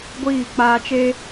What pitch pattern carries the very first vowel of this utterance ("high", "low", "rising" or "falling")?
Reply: falling